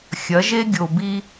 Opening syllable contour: rising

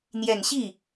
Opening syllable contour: low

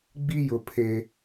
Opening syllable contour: high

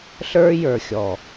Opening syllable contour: high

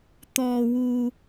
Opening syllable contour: high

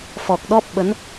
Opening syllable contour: low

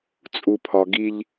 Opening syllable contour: low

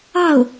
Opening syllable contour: falling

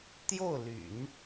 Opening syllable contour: falling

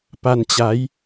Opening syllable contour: low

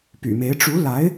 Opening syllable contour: low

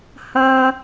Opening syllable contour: high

